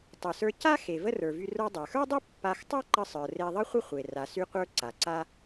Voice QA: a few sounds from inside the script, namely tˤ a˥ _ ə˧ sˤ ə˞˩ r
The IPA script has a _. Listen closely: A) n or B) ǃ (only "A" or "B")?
B